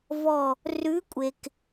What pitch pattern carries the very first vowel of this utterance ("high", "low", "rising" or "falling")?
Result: falling